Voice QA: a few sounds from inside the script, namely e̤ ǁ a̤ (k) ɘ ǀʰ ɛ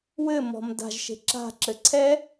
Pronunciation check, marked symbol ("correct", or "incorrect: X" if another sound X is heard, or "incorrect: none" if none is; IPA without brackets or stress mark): incorrect: ǁ